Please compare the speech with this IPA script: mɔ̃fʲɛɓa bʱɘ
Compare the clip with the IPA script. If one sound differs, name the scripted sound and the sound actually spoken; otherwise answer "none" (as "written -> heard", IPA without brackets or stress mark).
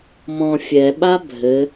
none